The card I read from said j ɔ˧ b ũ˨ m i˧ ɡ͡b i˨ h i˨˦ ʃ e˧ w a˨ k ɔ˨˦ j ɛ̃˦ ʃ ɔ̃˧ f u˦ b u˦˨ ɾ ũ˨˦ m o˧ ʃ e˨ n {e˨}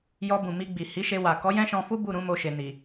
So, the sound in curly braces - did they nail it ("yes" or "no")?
no